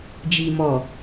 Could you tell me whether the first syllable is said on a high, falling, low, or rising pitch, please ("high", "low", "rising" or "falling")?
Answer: low